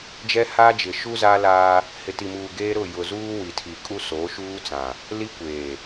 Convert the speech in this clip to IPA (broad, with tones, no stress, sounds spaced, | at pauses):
d͡ʒ ɛ˦ h aː˦ d͡ʒ ɪ˨ ʃ u˦ z a˦ l aː˦ | h ɪ˨ t i˨ m uː˨ ɡ eː˦ ɾ ʊ˦˨ j ʊ˨ z uː˦ w i˨ tʰ i˨ kʼ u˦ s oː˨˦ ʃ uː˦ t͡s ã˨ | l i˦ kʷ eː˨